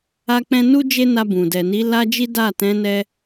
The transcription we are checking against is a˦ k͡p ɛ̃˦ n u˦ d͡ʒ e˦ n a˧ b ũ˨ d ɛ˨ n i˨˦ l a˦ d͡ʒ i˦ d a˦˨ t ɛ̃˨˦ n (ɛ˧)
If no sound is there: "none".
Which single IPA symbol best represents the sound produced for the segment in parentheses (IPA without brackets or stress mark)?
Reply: ɛ˧